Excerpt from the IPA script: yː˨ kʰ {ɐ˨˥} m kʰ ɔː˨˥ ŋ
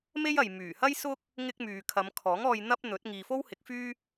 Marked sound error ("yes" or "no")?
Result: yes